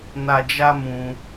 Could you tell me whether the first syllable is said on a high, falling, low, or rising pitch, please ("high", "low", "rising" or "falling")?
high